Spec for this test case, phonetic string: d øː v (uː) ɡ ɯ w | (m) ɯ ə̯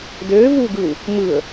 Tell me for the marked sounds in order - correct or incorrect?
correct, correct

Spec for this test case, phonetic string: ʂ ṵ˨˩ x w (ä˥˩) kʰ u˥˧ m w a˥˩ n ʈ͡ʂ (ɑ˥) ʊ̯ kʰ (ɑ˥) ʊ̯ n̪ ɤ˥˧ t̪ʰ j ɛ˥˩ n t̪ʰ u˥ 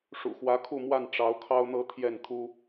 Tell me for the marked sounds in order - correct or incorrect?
incorrect, incorrect, correct

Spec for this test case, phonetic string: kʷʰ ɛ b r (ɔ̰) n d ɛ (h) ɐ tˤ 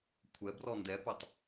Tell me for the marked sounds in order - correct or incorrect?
incorrect, incorrect

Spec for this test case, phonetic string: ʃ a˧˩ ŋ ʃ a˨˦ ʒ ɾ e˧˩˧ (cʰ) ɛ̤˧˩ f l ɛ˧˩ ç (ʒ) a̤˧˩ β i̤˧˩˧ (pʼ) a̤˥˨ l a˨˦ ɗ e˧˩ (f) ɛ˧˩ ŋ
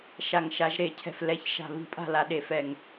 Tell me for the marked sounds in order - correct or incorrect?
correct, incorrect, correct, correct

